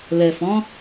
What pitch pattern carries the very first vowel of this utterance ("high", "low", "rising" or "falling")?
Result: low